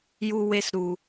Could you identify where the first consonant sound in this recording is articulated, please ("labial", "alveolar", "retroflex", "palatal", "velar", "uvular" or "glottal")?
palatal